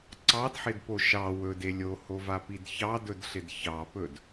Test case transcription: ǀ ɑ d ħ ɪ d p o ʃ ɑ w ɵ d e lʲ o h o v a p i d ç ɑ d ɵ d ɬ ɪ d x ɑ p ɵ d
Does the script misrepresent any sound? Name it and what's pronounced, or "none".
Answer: x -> ç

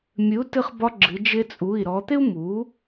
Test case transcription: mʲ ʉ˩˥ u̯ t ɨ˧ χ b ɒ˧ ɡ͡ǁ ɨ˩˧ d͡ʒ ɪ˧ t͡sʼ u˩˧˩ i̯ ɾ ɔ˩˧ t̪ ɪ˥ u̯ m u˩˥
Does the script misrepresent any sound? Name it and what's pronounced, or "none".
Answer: ʉ˩˥ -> ɨ˩˥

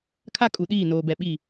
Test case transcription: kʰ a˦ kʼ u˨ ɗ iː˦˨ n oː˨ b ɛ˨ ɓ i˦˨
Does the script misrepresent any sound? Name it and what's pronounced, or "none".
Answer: none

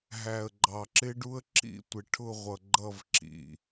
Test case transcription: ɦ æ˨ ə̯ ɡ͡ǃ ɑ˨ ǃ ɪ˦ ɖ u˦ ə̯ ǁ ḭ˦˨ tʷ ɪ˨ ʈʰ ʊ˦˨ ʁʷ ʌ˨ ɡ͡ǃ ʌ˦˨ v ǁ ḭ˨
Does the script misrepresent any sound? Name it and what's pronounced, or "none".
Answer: ǃ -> ǁ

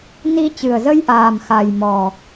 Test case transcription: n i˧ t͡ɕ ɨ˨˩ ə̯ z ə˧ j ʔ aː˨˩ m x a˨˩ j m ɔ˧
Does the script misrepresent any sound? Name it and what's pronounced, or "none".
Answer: ɔ˧ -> ɔ˨˩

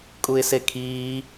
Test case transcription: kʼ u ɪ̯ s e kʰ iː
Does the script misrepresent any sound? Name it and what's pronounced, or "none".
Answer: none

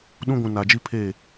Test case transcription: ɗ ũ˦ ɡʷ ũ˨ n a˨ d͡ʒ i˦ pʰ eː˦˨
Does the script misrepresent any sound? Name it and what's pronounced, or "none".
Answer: none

